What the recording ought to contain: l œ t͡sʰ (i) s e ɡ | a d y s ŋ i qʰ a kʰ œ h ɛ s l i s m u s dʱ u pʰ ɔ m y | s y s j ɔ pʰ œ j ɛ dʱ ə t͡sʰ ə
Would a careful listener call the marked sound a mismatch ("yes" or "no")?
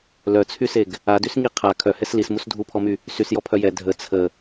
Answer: yes